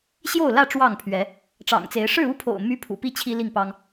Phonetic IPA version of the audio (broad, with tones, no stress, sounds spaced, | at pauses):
ɕ j o˥˨ ʊ̯ l ä˥˨ ʈ͡ʂ w ɑ˥˨ ŋ pʰ ɥ ɛ˨˦ | ʈ͡ʂ ɑ̰˨˩ ŋ t͡s e˨˦ ɪ̯ ʂ ɻ̩˥˨ u˦ pʰ o̰˨˩ ʊ̯ m y˦ pʰ ṵ˨˩ p i˥˨ t͡ɕʰ i˦ l i˥˨ ŋ p ɑ˦ ŋ